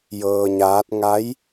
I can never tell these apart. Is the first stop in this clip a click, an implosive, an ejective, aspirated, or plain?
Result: plain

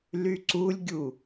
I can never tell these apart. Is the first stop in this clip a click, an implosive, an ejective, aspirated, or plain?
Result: click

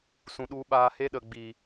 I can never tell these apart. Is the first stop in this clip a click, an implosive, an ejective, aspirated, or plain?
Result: implosive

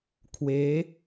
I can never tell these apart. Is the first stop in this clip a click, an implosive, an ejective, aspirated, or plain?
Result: aspirated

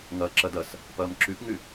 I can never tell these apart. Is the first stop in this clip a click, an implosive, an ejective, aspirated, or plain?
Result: click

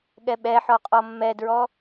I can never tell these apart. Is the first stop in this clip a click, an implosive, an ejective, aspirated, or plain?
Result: implosive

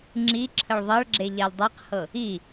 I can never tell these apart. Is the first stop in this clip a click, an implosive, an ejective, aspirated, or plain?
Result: click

